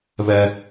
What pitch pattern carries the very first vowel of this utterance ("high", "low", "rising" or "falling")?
high